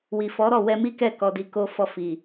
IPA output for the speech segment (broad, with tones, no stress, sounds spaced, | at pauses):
w i˨ f ɔ˨˦ ɾ ɔ˦˨ w ɛ˧ m i˦ k ɛ˦˨ k ɔ˧ d i˧ k o˦ f ɔ˦˨ f i˨